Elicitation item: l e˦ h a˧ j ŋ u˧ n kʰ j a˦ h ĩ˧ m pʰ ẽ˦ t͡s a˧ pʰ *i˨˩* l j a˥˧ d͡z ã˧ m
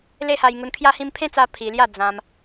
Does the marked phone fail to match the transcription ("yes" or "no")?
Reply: yes